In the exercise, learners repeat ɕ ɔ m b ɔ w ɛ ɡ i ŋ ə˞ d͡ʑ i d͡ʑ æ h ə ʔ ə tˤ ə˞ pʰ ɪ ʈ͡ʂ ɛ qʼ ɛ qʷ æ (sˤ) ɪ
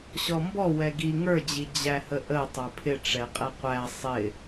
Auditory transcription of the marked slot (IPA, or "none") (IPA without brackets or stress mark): sˤ